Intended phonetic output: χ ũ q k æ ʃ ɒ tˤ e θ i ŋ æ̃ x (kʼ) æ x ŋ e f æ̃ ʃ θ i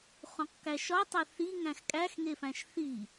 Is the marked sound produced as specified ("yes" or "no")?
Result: yes